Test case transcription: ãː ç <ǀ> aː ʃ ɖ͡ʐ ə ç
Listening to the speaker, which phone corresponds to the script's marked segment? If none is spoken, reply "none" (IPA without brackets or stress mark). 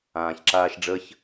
ǁ